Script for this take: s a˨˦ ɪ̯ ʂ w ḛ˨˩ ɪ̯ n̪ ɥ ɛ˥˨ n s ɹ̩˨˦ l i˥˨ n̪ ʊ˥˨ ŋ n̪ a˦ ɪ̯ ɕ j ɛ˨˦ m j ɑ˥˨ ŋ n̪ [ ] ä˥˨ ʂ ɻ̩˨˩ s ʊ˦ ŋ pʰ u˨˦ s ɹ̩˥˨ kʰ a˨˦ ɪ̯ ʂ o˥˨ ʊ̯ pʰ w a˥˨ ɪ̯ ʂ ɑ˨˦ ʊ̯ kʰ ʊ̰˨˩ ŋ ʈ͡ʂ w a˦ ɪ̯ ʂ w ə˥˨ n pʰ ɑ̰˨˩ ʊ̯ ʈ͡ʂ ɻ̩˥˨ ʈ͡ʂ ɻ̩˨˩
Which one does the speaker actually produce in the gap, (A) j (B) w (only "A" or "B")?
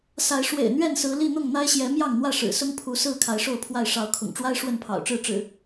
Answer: B